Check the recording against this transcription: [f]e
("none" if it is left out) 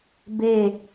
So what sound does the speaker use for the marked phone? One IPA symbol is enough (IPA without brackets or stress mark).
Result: b